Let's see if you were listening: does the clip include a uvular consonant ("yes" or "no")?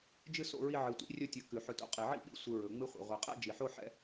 yes